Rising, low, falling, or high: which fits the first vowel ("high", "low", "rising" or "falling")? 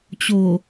low